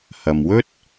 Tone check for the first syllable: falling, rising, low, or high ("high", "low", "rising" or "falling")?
low